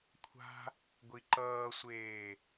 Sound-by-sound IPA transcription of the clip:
kʷʰa̤ | ɡʷiǃʌːsʷeː

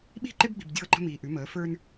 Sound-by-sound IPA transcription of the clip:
ɓi̤˦˨ǃe˦bɡ͡bi̤˨b dʲɤː˦ǃə̤˦ miː˨ʔʉ˨˦məː˨˦ fə˞˦n

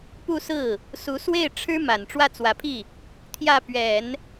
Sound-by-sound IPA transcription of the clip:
pu˥˧sɹ̩˥˩ | su˧˥swe˥˩ɪ̯ ʈ͡ʂʰɻ̩˥ma˨˩n ʈ͡ʂwä˥˩t͡swä˧˥pʰi˥˩ | t̪ʰjä˥˩pɥɛ˨˩˦n

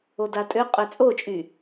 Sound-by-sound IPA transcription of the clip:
odatʼø qʼøt͡sʼot͡ʃʼy

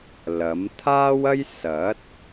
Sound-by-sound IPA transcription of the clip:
lɐ˨˥m t̪ʰaː˥wɐ˥j sɐ˨˥t̚

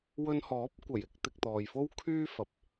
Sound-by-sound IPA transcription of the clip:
wɵ˧nhɔː˨˥p̚kʷɐ˨˩j ɪ˨˥k̚t̪ɪ˧k̚t̪ɔː˨j fo˥wkʰyː˥fɐ˨˥p̚

